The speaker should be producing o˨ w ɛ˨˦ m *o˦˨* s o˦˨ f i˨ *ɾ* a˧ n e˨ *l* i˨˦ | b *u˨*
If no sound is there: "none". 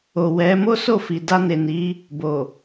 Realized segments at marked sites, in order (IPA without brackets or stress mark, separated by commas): o˦, d, n, o˨